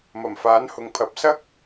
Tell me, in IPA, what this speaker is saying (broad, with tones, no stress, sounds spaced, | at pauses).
m ɐ˨˩ m f aː˨˥ n h ʊ˨ ŋ pʰ ɐ˨˥ p̚ s ɐ˥ k̚